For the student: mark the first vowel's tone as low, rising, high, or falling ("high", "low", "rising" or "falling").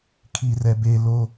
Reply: high